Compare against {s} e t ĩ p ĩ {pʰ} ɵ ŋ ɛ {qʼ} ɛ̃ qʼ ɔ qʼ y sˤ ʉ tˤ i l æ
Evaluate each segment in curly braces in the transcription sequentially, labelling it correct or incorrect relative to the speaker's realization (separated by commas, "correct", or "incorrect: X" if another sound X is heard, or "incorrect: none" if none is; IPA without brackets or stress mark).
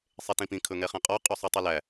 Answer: incorrect: sˤ, incorrect: kʰ, incorrect: χ